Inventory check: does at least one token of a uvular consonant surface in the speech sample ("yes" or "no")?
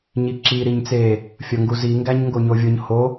no